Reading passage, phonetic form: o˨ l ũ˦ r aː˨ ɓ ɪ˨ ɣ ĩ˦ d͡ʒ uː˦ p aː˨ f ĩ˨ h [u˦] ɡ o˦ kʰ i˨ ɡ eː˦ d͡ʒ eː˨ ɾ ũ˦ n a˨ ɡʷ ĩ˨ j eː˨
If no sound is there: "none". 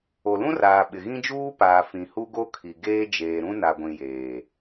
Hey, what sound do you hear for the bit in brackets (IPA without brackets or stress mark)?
u˦